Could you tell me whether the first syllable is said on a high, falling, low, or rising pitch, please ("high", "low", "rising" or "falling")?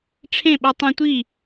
falling